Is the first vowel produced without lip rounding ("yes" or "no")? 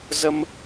yes